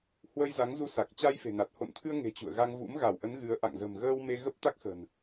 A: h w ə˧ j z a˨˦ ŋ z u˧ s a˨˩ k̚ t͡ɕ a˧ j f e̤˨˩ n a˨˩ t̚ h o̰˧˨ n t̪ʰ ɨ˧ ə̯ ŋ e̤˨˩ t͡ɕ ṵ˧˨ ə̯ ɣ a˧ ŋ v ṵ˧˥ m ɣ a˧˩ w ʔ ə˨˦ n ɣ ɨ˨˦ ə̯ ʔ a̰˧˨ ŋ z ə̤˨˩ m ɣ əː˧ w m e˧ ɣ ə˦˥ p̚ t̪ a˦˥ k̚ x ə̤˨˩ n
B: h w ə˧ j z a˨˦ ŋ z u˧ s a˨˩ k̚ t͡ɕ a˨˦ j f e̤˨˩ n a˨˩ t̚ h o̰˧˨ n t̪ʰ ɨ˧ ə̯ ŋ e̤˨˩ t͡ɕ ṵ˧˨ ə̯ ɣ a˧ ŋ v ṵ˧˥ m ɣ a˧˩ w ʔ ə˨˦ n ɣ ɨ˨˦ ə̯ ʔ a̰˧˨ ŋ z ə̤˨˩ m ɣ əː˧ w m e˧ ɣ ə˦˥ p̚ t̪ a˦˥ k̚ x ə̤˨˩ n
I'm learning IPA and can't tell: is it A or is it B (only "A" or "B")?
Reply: A